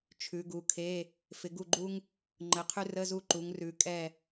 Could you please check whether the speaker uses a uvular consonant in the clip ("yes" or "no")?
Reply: yes